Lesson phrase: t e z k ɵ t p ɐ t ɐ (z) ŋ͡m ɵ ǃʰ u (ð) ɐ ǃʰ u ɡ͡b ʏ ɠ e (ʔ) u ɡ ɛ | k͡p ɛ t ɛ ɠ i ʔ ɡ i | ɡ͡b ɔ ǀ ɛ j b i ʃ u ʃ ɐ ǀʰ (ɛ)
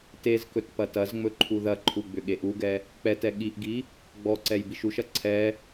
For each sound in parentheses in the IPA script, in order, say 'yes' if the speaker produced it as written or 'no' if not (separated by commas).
yes, yes, yes, yes